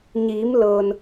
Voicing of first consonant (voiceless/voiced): voiced